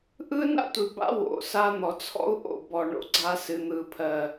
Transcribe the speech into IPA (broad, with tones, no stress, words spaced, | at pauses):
ʔɯ˦na̰˦tʷɨ˨ba̰˦ wo̰˨sa˦ n̪ɔ˨t͡sʰɔ̰˦u̯ ʔo̰˨bɔ˨ ɳo̰˦ɡ͡ǀa˦ sɨ˨n̪ɯ˨pʰɜ˨